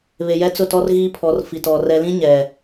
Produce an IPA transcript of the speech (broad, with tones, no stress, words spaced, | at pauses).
βe˨jɛ˦t͡sʊ˦˨ tɔ˦rɣiː˦pʰɔ˨˦r fi˨tɔ˨ rɛ˦ lĩ˦ɲɛ˨